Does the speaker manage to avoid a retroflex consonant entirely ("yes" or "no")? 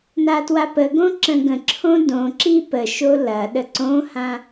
yes